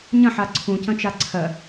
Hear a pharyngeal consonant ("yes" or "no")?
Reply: yes